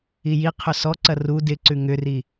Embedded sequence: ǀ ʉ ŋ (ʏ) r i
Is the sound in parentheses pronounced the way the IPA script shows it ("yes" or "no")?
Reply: yes